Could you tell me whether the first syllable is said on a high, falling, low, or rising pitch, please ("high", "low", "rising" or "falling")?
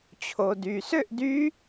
low